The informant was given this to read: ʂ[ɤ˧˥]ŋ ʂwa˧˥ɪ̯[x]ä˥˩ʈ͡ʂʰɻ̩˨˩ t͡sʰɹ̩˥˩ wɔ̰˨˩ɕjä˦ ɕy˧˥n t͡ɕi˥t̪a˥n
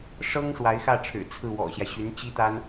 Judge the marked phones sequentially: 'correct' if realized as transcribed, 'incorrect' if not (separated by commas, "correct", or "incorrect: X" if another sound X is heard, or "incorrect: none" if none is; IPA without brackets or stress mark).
incorrect: ɤ˥, correct